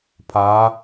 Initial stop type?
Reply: aspirated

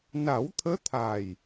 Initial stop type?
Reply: aspirated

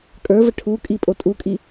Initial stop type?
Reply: ejective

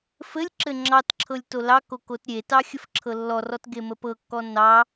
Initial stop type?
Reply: click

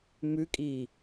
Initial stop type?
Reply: ejective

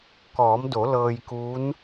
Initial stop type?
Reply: plain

